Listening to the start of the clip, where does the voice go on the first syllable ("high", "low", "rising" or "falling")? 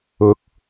rising